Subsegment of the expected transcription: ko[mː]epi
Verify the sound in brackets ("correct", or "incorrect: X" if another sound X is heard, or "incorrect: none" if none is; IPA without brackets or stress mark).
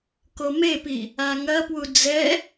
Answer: incorrect: m